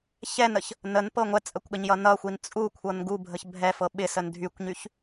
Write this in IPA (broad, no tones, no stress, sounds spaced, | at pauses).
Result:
ç ɛ n ə ç | n ə n p ɤ ŋʷ ɛ t͡sʼ ə kʷ ɠ ə ɲ j ʌ n ʌ xʷ i n t͡sʼ u kʷʰ ɤ n ɡ u bʱ ə ç bʱ ɛ f ɤ ɓ ɪ s ə n dʱ y kʷ ɲ y ç